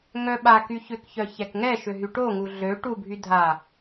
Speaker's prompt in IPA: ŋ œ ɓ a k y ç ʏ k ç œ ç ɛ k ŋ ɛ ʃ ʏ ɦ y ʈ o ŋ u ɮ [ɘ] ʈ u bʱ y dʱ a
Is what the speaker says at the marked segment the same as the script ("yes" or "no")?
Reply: no